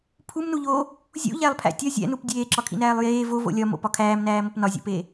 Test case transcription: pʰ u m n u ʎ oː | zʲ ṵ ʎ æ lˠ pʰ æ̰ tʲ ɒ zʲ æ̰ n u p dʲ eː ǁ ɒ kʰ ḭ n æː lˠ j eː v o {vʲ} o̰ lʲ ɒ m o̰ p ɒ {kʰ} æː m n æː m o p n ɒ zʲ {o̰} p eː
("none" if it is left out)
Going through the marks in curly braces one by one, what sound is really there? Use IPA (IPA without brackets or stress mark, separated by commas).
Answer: v, kʰ, o̰